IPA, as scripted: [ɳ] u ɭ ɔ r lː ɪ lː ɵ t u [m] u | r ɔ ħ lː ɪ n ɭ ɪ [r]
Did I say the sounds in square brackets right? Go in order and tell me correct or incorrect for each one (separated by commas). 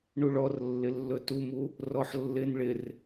correct, correct, correct